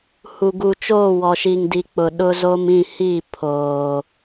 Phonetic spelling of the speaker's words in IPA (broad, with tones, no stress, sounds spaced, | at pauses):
h u˨ ɡ u˨ t͡ʃ oː˦˨ w ɔ˨ ʃ i˨ ŋ d i˨ k͡p ʊ˨ ɗ ʊ˦ z o˦ m ĩ˦˨ h i˦˨ pʰ oː˨